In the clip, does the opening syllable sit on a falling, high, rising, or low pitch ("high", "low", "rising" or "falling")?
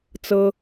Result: high